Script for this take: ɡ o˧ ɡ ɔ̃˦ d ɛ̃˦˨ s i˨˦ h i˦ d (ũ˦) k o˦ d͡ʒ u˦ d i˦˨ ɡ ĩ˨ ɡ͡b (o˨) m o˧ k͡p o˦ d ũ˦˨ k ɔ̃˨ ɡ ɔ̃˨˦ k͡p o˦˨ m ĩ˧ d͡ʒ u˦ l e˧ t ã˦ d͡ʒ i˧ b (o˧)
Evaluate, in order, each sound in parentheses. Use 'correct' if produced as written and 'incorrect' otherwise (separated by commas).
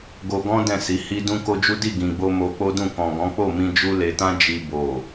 correct, incorrect, incorrect